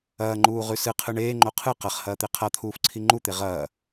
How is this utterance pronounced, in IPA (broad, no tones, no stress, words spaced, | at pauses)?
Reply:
ɐːŋ͡ǃuːʁʉ sɨqʰɨ ɳeːŋ͡ǃo qʰɨ qɐχhɐːt̪e qʰat̪ʰuːfǀʰi ŋ͡ǃut̪e ʁɐː